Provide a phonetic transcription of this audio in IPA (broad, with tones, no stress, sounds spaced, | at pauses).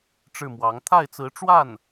ʈ͡ʂ ɻ̩˥˩ m w ɑ˧˥ ŋ t̪ʰ a˥˩ ɪ̯ t͡s ɹ̩˧˥ ʈ͡ʂ w a˥˩ n